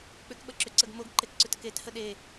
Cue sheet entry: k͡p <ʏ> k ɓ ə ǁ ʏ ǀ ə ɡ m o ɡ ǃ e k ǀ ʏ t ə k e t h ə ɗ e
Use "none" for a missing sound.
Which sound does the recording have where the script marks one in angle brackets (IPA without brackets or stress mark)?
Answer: ʏ